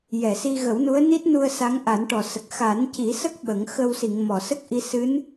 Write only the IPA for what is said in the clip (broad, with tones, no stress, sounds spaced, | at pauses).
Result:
j ɛ˨˩˨ s i˧ ɣ ə˨˩˦ w n u˧˥ ə̯ n i˦˥ t̚ n u˧ ə̯ s a˧˥ ŋ ʔ a˨˩˦ n ʈ ɔ˨˩ s ə˨˩ k̚ x a˨˩˦ n c i˨˩˦ s ə˦˥ k̚ ɓ ə˨˩˦ ŋ x ə˧ w s i˨˩˨ ŋ m ɔ˨˩˨ s ə˦˥ k̚ ʔ i˧ s ɨ˧˥ n